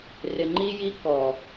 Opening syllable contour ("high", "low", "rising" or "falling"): low